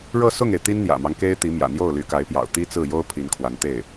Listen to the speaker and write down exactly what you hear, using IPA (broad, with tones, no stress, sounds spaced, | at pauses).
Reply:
ɻ ɤ˥˧ s ʊ˥˩ ŋ e˩ ɪ̯ t̪ i˥ n n̪ j ä̰˨˩ m ɑ˦ ŋ k e˥ ɪ̯ t̪ i˧˥ m j ä̰˨˩ n̪ j o˥˩ ʊ̯ l y˧˥ k a˧˥ ɪ̯ p j ɑ̰˨˩ ʊ̯ t̪ i˥ t͡s ɹ̩˥˩ j o˥ ʊ̯ pʰ i˧˥ n kʰ w a˧˥ n t̪ e˥˩ ɪ̯